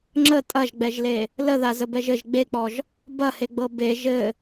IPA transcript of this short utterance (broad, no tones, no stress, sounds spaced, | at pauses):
ŋ͡ǁ ə tʼ ɐ ʒ ɡ͡b ɛ ʒ l e | l ə ð a z ə b ɛ ʒ ɘ ʒ ɡ͡b e k͡p ɔ ʒ | b ɐ h e ɡ͡b ɤ b e ʒ ɘ